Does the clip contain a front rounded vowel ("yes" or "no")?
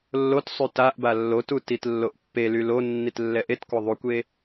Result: yes